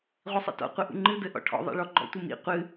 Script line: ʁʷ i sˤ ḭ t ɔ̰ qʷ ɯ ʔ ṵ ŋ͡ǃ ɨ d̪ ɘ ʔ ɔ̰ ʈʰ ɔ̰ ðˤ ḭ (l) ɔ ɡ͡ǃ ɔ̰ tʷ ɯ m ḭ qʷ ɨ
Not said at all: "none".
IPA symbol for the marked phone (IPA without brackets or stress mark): ɭ